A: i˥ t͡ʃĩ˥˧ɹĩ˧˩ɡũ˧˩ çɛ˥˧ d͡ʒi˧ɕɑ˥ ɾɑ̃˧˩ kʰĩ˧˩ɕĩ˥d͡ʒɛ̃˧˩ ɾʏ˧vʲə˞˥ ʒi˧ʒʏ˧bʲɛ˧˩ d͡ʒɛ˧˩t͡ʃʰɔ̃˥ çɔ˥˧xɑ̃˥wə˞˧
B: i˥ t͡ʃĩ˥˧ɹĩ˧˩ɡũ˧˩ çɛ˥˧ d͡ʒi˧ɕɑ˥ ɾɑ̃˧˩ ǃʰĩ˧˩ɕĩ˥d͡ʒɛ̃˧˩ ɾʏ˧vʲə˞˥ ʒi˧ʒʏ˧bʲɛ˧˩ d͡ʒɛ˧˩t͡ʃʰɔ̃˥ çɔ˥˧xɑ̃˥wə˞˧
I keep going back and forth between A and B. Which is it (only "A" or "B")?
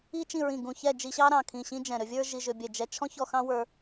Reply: A